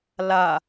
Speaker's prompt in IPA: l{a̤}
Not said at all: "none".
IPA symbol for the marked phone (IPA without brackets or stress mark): a